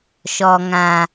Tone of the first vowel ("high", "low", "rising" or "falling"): low